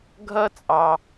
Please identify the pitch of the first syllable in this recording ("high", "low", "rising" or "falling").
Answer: high